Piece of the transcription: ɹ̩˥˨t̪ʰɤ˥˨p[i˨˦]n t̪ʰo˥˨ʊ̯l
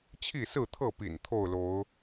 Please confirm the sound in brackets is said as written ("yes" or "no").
no